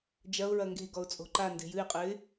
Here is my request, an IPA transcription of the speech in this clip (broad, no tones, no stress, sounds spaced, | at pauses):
d͡ʒ ɐ ʊ̯ ɹ ɐ ŋ ɡ e̤ ɡ ɔ ʊ̯ t͡sʼ o̤ ǃ a n d e̤ j ɨ ɪ̯ qʼ ɘ ɪ̯